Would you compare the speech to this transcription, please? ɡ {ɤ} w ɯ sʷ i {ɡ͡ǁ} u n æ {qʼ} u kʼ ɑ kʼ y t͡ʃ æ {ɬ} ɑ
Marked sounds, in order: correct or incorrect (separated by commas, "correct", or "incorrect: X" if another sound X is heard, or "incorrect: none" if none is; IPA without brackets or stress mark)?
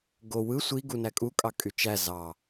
incorrect: o, incorrect: ɡ, incorrect: kʼ, incorrect: z